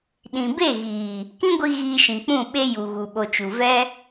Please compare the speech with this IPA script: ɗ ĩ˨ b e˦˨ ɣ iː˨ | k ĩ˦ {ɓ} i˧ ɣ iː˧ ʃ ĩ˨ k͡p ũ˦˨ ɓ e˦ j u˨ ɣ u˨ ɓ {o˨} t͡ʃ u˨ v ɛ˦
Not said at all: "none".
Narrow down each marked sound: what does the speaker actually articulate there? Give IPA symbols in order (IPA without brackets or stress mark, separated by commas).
ɡʷ, o˨